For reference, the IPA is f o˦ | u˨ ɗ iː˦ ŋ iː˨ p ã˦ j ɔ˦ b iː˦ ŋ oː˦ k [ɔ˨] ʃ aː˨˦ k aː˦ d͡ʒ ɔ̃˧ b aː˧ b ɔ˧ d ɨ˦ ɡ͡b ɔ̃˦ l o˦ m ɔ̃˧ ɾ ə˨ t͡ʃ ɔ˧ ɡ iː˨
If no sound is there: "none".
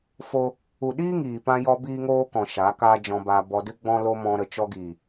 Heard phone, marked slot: ɔ̃˨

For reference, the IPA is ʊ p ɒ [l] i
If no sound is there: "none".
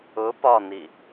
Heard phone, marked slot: n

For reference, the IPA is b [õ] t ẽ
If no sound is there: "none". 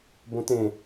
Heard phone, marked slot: õ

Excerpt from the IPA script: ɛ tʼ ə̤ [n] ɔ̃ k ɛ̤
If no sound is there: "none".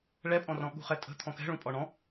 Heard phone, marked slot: t̪ʰ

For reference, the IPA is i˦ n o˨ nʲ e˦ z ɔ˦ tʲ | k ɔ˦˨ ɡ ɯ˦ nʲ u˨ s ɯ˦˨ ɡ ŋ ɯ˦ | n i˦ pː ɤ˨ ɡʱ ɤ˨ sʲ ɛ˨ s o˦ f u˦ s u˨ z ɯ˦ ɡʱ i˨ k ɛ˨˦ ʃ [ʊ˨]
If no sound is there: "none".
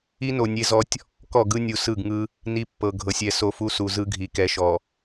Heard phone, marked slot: ɔ˨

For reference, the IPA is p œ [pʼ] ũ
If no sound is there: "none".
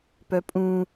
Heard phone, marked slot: pʼ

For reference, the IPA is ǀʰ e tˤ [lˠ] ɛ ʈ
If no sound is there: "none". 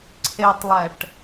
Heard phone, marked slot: lˠ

